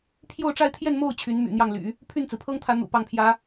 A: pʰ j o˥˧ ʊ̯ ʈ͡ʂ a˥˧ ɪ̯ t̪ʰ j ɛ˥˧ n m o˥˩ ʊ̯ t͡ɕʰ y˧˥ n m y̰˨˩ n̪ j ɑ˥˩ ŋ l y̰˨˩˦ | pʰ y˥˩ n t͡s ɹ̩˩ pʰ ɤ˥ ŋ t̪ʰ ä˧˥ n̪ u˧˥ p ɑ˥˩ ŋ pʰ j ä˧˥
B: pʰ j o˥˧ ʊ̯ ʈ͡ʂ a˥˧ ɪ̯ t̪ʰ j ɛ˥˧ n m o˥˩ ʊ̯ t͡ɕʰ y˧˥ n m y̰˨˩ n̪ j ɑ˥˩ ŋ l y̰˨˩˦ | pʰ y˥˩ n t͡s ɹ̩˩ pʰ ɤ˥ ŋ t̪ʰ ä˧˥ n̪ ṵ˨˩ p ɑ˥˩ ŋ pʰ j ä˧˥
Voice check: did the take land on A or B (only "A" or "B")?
B